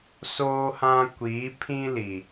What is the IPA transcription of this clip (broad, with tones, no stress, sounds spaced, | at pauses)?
s oː˦ h ã˦ kʷ iː˨˦ pʰ ĩ˦ l i˨